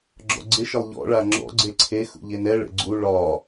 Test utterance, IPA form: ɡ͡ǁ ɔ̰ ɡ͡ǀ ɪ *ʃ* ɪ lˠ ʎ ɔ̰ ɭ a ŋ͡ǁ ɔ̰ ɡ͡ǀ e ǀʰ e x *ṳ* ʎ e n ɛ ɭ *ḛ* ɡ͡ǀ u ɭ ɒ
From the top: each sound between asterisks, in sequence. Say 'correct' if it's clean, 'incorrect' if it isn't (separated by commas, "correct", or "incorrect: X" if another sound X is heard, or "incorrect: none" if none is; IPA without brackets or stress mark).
correct, incorrect: ṵ, correct